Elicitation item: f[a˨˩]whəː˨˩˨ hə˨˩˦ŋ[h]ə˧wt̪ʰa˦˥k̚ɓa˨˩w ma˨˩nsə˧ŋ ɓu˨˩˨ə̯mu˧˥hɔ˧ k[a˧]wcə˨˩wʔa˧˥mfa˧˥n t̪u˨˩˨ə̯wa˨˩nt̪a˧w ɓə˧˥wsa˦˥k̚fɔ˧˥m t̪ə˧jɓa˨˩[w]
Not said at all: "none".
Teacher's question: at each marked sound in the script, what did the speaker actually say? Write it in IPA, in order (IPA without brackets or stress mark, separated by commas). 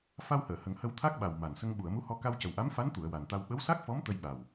a˧, h, a˧, w